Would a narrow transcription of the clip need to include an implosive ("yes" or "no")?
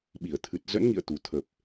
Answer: yes